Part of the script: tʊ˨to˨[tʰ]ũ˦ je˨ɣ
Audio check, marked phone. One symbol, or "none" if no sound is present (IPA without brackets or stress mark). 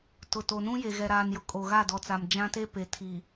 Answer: n